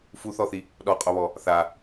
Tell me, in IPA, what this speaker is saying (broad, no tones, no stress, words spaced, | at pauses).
fuθɔθi | ɗɔqʼoβɔ | θa